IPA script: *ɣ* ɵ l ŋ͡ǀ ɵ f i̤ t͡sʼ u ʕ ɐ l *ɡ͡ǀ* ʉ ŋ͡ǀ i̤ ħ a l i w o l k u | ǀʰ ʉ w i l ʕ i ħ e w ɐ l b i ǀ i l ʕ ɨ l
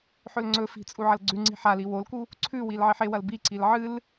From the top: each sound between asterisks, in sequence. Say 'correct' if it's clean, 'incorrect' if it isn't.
incorrect, correct

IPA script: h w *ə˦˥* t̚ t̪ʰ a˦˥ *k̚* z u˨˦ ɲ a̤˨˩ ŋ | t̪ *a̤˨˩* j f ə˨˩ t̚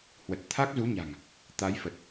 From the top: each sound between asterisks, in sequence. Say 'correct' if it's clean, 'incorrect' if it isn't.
incorrect, correct, incorrect

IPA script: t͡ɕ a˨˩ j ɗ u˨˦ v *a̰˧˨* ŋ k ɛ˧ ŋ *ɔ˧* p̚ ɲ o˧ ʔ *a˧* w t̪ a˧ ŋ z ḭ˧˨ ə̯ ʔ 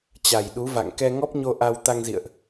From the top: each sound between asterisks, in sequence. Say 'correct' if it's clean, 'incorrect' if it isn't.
correct, incorrect, correct

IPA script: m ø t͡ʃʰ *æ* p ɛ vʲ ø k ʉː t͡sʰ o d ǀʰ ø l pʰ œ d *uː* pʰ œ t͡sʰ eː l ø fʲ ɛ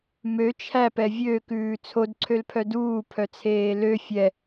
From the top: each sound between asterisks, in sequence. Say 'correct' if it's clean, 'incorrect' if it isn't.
correct, correct

